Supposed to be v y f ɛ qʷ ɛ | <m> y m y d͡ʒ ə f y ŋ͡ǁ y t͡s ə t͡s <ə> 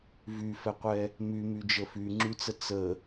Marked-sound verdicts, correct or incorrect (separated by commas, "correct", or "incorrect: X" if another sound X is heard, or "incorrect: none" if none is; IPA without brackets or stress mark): correct, correct